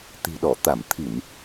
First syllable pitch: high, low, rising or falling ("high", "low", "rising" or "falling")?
low